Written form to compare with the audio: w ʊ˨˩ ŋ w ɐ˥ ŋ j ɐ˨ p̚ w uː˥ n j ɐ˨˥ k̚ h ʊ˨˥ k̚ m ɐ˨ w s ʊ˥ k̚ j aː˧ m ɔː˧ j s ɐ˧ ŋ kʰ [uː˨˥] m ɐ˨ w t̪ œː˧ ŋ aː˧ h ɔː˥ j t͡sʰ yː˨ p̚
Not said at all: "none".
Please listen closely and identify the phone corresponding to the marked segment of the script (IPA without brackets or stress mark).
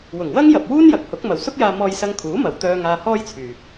uː˨˥